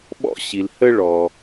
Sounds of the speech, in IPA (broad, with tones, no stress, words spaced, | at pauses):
ɓɔ̰˧ɕi˩l hə˧ ɭɔ˩